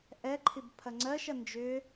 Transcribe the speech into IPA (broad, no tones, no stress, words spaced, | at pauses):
ʔɛ ǃʰibpʰɐŋ͡ǀɜʃ ɐnd͡ʒʏ